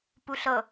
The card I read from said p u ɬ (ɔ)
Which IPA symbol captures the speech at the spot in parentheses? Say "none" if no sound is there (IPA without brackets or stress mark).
ɤ